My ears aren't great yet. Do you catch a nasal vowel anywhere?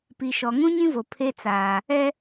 yes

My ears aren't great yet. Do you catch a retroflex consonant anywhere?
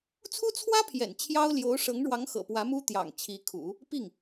yes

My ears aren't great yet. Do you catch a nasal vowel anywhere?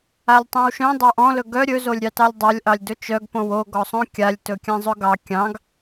yes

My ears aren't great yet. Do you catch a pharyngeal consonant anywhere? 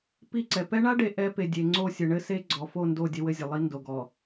no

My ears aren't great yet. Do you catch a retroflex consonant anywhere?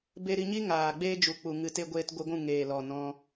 no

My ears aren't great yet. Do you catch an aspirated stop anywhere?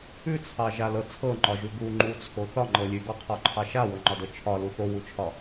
yes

